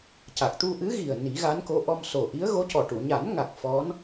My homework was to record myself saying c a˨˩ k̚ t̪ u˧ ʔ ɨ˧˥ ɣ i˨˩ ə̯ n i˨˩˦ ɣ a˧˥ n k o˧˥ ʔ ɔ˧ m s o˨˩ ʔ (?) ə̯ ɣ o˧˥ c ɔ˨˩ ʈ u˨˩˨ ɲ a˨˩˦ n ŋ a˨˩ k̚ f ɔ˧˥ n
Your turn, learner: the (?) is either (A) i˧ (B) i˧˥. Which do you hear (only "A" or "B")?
B